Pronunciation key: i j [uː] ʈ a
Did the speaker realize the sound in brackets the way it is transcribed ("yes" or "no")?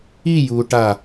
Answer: yes